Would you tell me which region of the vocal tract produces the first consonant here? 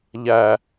palate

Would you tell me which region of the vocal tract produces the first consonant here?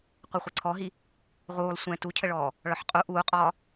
uvula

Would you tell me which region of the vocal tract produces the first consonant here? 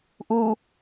throat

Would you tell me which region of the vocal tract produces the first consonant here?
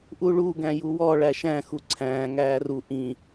throat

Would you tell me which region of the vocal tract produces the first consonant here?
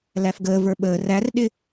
tongue tip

